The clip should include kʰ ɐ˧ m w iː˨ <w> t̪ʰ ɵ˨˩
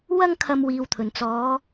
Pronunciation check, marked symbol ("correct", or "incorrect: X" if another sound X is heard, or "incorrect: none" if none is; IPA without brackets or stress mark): correct